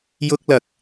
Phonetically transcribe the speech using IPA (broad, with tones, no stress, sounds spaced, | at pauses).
j ʊ˥ k̚ l ɐ˧ k̚